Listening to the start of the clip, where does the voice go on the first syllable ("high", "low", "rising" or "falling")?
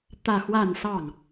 falling